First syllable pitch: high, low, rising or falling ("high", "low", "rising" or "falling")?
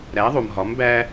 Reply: rising